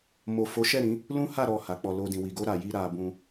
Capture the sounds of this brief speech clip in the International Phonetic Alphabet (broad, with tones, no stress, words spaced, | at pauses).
mo˨ fo˨˦ʃɛ˦˨ ɾĩ˨˦ | lũ˦ha˦˨ ɾɔ˨ ha˨˦k͡pɔ˧ lo˧dĩ˨ wi˨ɡo˧ ɾa˨ji˧ ɾa˧bũ˧